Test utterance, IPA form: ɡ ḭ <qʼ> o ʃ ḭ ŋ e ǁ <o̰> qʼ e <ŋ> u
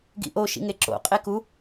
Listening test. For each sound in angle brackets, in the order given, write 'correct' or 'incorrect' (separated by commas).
incorrect, correct, incorrect